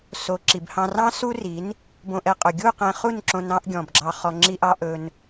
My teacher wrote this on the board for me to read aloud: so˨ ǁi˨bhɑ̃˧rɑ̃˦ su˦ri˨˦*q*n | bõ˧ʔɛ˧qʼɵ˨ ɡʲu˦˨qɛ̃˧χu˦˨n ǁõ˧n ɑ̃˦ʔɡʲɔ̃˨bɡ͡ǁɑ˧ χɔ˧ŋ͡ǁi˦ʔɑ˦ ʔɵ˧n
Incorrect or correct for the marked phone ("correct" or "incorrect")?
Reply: incorrect